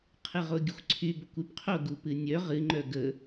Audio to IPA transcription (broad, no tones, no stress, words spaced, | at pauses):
qʰɨʁoɡʲɨxʷǀʰy bokʷypqʰo ɡupɨnʲœ ʁɨ ŋ͡ǃœɡə